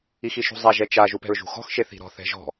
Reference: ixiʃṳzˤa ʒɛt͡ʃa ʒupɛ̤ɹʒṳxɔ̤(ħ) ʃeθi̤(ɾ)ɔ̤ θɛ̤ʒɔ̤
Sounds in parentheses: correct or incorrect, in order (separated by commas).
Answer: incorrect, correct